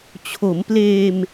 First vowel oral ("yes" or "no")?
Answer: yes